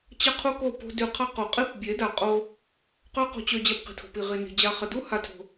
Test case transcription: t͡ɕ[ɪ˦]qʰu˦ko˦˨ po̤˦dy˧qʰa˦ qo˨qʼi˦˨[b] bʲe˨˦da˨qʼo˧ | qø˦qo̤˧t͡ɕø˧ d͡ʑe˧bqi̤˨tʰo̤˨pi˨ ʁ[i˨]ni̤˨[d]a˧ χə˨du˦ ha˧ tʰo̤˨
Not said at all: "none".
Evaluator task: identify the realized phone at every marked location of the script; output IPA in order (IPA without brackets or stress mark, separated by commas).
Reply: ə˦, p, i˨, d͡ʑ